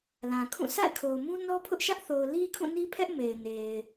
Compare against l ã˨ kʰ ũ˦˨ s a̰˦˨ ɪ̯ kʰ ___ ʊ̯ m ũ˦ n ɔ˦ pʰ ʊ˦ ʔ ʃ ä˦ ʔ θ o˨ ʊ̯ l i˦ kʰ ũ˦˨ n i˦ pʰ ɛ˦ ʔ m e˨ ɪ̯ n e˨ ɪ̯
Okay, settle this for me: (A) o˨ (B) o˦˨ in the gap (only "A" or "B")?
A